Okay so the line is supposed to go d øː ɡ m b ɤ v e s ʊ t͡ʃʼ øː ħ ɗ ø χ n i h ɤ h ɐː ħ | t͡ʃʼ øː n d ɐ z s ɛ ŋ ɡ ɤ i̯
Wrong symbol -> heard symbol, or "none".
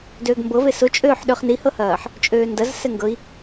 none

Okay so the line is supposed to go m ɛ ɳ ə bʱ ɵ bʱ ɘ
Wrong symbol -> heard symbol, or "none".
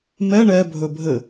ə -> ɛ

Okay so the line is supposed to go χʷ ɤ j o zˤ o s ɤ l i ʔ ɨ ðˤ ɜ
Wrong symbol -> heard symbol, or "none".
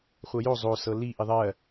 ɨ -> i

